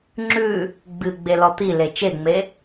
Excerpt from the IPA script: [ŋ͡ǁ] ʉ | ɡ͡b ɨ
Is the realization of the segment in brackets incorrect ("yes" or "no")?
no